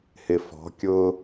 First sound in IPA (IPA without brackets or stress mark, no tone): h